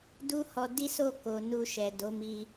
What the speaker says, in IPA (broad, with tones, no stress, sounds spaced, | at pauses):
d u˦ h ɔ˧ d i˦ s o˦˨ k o˨ n u˧ ʃ ɛ˨ d o˨˦ m i˧